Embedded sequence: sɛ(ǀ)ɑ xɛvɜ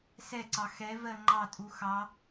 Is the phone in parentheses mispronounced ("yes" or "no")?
no